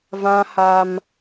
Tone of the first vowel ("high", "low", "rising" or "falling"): high